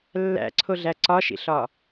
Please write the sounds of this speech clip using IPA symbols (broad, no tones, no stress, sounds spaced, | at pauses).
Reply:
lː æ̰ ǀʰ o ɮ æ ǀ ɒ ʃ ḭ ɬ ɒ